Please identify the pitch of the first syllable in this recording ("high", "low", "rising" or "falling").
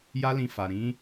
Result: high